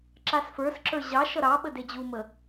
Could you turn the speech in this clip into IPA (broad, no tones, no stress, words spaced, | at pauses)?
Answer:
ǁasfə˞sǁə˞ ʑɑʃʌ ɾɑɓə ded͡ʑumə